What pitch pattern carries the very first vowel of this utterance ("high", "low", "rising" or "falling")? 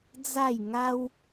falling